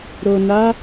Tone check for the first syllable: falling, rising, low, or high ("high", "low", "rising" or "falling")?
low